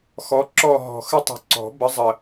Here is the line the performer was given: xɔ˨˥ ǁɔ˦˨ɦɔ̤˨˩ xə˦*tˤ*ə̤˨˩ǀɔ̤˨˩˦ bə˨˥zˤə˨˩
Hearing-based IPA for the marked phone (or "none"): tˤ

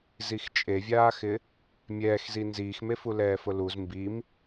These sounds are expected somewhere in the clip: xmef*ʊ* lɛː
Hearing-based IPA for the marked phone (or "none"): u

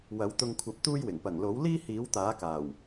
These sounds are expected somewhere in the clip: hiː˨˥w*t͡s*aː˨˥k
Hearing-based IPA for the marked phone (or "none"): t̪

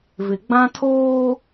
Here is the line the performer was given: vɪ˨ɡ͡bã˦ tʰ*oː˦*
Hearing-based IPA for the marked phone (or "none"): oː˦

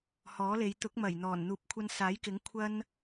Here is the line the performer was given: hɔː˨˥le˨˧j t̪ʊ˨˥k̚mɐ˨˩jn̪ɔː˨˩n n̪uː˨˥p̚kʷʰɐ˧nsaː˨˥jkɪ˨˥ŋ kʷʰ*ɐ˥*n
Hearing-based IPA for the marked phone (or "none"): ɐ˥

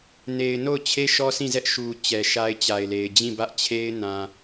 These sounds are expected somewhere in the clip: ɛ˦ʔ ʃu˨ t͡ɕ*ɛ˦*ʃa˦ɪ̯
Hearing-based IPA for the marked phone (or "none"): ɛ˨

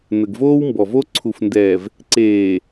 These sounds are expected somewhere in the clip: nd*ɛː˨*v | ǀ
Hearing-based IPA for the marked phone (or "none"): ɛː˨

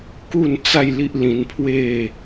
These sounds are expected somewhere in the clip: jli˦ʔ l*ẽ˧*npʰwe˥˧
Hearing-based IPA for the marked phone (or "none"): ĩ˧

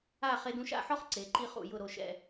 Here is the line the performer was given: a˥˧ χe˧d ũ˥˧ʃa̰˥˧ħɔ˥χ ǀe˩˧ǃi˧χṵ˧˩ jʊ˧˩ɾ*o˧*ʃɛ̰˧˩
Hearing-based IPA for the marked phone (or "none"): o˧˩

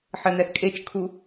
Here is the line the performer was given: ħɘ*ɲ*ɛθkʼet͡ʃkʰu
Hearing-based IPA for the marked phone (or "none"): n̪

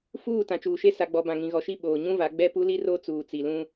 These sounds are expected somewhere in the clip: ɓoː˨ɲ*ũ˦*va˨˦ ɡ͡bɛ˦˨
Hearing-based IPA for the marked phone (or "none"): ũ˦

